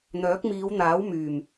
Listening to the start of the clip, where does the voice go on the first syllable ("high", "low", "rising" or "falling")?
rising